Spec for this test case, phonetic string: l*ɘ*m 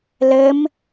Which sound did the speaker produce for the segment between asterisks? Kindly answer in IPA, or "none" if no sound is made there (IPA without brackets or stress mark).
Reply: ɘ